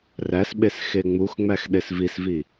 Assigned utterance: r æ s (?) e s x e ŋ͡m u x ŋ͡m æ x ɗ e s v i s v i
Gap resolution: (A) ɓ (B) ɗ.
A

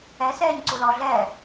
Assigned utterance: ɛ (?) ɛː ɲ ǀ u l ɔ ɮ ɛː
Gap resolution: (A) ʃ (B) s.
B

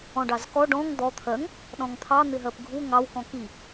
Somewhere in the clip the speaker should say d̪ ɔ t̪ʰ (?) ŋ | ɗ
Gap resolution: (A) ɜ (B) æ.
A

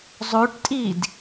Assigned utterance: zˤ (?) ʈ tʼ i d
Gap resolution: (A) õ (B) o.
B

